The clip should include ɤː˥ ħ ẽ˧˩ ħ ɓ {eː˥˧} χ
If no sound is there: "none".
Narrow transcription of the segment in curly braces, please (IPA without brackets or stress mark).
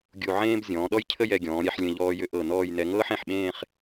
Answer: ẽː˥˧